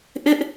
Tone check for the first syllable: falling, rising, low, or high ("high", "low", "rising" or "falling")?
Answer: high